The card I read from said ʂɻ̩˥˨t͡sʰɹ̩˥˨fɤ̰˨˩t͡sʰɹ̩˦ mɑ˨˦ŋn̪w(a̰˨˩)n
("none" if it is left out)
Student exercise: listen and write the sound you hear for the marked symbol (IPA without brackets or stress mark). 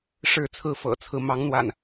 a̰˨˩